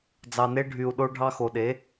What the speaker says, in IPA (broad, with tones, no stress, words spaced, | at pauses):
d͡zɑ˨ne˧ ɖʱy˨u̯ ɗo˧ɖʱɑ˧xo˨ɗe˨˦